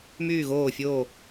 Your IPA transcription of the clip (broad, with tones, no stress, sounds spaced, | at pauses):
m yː˥˧ ɣ oː˥˧ fʲ oː˥˧